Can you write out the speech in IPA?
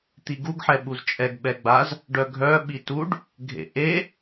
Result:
t̪iɡuɡ ħɛɓuzt͡ʃʼɛɡ ɓɛɡ͡baz | ɖœɡʱœ ɓituɖ | ɡʱḛʔe

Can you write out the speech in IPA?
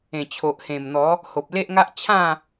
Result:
ẽ˨˩t͡ɕʰo˨ʔhẽ˨˩mn̪ɔ˨˦ | ho˨p̚le˦ʔŋa˦ʔ t͡ɕʰã˥˧

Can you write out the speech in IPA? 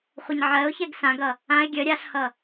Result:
χʷʌɲʕɜʊ̯çɛɡ sãɡʌ | ãɪ̯ ɡʲə ɾʲaɬhʌ

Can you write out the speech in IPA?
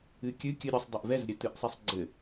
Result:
ɨkʲɨ kʲɨɾʲusˤ dˤɨʔvɛz ɾʲɘtɨʔsˤisˤɡ͡ǀɘ

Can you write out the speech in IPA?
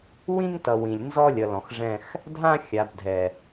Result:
wĩ˦ŋtʌ˨ wĩ˨lʲ nzɔ˦lʲʌ˨lɔ̃˨xʐɛ̃˦x | dʱã˦ xʲa˨bdʱɛ˨

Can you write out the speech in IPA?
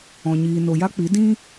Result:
ɔ̃˨ɲiː˨ no˨ja˦k͡pi˨˦ dĩ˦

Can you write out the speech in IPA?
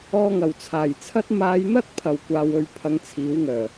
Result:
ɔː˧ŋɐ˨˩wt͡sʰaː˨˩jt͡sʰɐ˥t̚ maː˨˧jn̪ɐ˥t̚pʰɐ˨˩w kʷaː˨wɵ˨ɥ pʰɐ˧ŋt͡sʰiː˨˥wŋœː˨˩

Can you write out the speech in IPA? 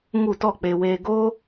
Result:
ŋu˦˨tɔ˦˨k͡pe˧ weː˧ɡo˦

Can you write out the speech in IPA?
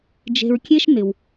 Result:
d͡ʒe̤˧ɹkʲe˥ʃ nɪ˩w

